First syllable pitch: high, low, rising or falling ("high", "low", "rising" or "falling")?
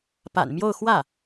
low